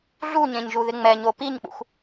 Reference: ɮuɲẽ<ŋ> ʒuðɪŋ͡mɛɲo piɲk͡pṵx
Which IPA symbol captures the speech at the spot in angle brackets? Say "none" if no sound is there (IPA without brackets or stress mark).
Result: ɲ